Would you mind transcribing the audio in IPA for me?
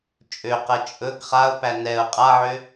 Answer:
t͡ʃʼ ø q ɛ t͡ʃʼ ɵ ɡ χ a ʊ̯ p æ n ɛ ʊ̯ qʼ a ʕ ø

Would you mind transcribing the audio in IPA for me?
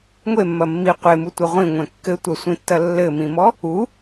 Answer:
ŋʷ e mː ɐ mː i qʷ e m u tʷ ɐ ʁʷ ĩ ŋʷ ɛ̃ kː ɘ tʷ ɐ sʷ ĩ tː ɐ lː ɘ m ĩ m ɔ | u

